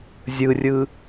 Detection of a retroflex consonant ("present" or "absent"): absent